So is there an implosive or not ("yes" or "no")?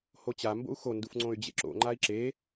no